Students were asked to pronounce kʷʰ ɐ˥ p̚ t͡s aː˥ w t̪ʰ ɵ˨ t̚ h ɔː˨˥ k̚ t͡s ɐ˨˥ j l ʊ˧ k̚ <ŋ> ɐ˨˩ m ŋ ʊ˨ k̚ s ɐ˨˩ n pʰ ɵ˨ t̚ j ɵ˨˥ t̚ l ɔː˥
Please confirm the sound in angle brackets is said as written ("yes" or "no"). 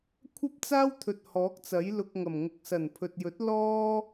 yes